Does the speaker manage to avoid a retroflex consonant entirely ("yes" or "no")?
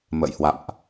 yes